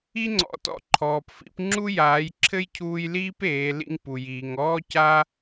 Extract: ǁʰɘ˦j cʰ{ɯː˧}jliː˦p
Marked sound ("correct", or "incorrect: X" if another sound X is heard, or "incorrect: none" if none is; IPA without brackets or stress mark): incorrect: uː˧